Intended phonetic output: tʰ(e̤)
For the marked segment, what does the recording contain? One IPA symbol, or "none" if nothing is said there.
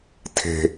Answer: e̤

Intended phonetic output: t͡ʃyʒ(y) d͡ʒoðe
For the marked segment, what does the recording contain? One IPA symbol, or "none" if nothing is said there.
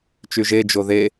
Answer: e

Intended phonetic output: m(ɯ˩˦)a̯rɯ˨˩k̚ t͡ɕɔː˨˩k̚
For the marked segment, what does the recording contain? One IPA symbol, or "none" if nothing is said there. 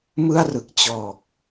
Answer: ɯ˥˩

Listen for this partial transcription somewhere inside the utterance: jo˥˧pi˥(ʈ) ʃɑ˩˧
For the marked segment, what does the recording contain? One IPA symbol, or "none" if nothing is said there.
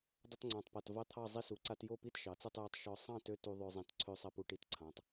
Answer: t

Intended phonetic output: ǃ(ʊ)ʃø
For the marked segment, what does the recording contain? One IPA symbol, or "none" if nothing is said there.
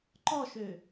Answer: ɔ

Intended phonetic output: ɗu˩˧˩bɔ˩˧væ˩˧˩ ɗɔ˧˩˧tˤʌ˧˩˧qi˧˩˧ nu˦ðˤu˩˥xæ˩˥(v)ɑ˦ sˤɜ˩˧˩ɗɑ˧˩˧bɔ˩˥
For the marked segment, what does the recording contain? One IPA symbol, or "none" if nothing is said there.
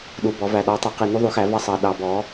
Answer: v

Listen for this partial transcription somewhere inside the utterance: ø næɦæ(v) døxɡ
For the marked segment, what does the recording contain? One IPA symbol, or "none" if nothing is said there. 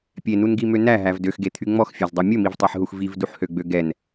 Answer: v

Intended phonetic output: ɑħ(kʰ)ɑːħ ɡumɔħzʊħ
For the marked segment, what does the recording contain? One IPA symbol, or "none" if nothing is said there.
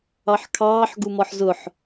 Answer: kʰ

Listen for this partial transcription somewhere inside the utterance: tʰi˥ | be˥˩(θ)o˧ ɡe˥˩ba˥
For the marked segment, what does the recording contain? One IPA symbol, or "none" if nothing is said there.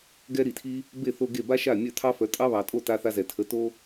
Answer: θ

